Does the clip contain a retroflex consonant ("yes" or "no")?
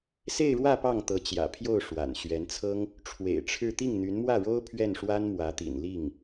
yes